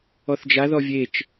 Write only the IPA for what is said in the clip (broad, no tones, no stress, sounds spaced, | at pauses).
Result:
ɔ θ d͡ʒ a ð ɔ vʲ e t͡ʃ